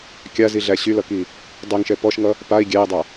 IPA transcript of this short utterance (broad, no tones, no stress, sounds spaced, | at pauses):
kʲ a z i ɮ æ ɕ y l ʌ k i | dˤ y ŋ ʃ ɛ p ɔ ʃ ŋ ʌ | p a i̯ ɡʲ æ i̯ dˤ a